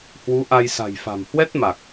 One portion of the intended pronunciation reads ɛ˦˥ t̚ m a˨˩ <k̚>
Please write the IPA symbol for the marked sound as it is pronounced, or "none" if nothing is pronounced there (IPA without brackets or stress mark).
k̚